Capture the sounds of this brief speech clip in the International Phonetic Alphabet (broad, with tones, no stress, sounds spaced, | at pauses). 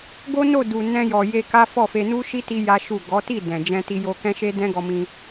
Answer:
ɡ o˦ n o˦˨ d u˨ n ɛ̃˧ j ɔ˨ j e˧ k a˦ f ɔ˦˨ f e˧ n u˦ ʃ i˦ t i˦ j a˦ ʃ u˦˨ ɡ ɔ˨˦ t i˦˨ d ɛ̃˨ d͡ʒ ɛ̃˧ t i˧ j o˧ k ɛ̃˦ ʃ e˦ d ɛ̃˦ ɡ ɔ˧ m ĩ˧